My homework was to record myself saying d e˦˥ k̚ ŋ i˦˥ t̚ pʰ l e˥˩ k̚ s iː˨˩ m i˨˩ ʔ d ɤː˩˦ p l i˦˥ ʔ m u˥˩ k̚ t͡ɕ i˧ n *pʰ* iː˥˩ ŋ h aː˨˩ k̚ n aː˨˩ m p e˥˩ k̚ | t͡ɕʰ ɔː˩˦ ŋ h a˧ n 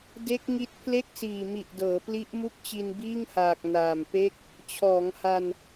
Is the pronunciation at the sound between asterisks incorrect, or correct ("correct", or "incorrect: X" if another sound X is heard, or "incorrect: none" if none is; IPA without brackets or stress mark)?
incorrect: b